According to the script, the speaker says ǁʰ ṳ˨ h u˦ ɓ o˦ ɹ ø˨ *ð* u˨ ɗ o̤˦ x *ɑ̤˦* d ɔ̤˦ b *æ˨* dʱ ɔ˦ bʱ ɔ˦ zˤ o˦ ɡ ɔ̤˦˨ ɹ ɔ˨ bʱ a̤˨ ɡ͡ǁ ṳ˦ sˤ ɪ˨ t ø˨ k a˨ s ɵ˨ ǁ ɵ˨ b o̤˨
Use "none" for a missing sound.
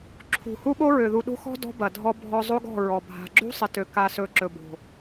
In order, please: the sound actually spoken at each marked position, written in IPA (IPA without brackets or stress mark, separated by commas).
ð, ɔ̤˦, ɐ˨